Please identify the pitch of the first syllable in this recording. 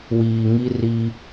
low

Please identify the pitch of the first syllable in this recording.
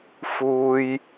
high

